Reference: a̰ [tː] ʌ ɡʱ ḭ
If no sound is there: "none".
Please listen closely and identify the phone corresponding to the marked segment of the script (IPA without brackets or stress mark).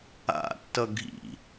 tː